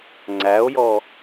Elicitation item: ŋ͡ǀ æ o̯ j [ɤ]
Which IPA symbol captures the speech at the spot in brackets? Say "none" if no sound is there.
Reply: ɔ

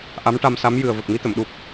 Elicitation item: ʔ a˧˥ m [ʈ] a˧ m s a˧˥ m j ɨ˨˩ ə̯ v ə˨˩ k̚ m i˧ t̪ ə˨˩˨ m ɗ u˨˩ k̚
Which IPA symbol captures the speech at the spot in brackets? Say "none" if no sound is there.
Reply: ʈ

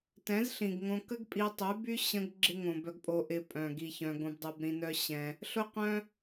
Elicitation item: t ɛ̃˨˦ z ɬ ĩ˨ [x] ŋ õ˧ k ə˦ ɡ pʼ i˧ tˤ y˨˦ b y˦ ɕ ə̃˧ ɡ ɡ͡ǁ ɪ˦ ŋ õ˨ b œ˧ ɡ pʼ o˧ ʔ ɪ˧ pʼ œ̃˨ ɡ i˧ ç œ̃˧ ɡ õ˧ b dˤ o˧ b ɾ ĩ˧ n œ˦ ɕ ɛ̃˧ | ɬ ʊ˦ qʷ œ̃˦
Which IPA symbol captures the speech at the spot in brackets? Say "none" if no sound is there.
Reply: ɡ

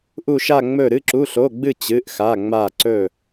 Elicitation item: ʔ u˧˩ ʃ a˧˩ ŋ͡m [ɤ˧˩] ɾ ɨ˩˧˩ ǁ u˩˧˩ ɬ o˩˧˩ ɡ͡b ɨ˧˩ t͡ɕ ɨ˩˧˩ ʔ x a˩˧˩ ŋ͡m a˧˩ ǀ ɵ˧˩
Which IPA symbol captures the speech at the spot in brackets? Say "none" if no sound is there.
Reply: ɵ˧˩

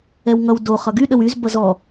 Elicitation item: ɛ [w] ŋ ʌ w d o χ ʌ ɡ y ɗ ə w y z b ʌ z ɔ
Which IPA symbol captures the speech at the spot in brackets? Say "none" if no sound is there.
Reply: w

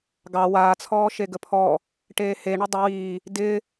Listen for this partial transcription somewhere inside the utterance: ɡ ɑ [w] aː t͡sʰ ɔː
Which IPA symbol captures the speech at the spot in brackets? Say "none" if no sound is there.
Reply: w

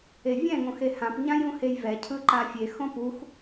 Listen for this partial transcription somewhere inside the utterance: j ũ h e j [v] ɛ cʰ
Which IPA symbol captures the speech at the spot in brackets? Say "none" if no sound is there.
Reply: v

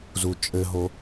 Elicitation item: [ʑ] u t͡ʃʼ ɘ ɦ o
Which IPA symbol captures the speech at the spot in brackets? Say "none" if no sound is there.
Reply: z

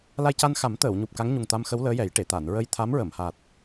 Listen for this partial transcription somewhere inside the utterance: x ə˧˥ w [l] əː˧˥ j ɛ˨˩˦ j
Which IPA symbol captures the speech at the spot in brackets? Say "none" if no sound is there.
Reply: l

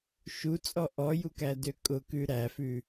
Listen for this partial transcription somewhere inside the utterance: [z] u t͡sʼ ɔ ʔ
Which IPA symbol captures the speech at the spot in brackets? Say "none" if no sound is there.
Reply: ʃ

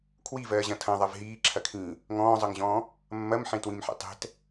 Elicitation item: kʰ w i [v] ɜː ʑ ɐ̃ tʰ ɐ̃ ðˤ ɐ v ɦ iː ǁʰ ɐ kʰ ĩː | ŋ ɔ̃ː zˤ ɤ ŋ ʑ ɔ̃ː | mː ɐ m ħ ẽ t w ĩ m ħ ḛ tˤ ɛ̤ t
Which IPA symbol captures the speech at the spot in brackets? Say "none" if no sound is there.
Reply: v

